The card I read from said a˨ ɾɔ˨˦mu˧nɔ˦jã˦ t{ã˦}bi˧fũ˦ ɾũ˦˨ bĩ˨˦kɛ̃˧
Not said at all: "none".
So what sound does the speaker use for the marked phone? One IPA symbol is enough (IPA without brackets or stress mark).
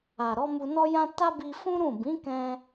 a˦